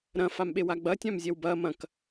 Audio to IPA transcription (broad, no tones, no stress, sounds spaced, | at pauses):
ɾ ɐ̃ f a m ɓ e w a ɡ͡b ɐ tʲ ã m zʲ ɛ w b ɐː m ɐ̃ k